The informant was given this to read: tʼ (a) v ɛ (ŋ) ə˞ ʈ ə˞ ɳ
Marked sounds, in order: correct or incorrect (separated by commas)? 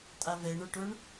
correct, incorrect